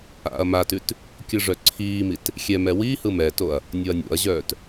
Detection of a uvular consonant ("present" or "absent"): absent